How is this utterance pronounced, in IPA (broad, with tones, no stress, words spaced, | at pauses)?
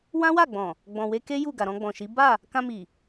wã˦wa˦˨ɡ͡bɔ̃˨ | ɡ͡bɔ̃˨we˧ke˦ ju˦˨ ɡa˨ɾɔ̃˧ɡ͡bɔ̃˨ʃi˨˦ ba˦˨ | kã˧mi˨